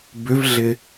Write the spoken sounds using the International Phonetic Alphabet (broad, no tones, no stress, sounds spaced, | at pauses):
b ʏ v ɮ ɪ